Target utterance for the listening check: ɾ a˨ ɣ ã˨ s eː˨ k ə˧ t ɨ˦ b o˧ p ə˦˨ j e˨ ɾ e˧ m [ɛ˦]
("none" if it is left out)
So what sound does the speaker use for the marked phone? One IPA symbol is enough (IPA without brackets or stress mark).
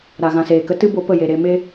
e˦